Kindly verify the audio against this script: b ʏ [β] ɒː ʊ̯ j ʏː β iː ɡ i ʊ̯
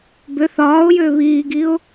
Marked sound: incorrect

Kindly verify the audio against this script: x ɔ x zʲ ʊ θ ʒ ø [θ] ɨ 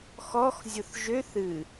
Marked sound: correct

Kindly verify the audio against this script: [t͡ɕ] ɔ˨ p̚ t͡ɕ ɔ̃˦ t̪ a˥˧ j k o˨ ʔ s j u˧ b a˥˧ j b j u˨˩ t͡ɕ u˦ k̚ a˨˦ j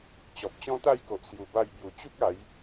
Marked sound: correct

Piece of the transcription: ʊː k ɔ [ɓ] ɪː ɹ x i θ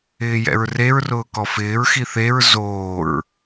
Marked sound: incorrect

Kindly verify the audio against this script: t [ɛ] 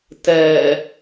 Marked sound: correct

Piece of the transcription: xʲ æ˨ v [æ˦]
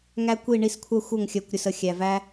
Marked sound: correct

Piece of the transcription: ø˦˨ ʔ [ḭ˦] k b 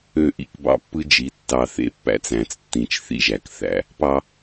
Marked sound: correct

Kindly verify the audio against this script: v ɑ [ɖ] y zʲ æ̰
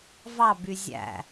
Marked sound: incorrect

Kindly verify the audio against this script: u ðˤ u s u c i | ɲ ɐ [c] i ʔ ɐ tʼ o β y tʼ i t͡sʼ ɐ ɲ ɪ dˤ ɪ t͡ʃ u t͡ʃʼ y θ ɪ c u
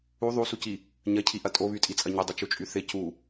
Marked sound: incorrect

